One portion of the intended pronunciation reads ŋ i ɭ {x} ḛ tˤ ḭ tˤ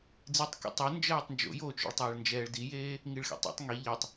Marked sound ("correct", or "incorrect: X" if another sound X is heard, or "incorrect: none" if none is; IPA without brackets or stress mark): correct